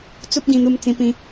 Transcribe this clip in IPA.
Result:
t͡s u˦ p̚ ɡ ĩ˧ n̪ u˧ m t͡s ĩ˧ p ĩ˧

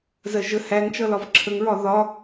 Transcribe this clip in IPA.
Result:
z ɜ ʒ ə h æ ŋ t͡ʃ ʌ l ɒ v ǁʰ ə ŋ ɹ ɒ ð ɒ

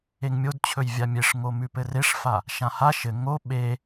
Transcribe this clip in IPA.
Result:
e ŋ mʲ o d t͡ɕʰ ɵ j vʲ a mʲ e ʂ ŋ o m ʉ p ɘ r e ʂ f a | ʃ ã h a ʃ ɘ ŋ o ɓ e

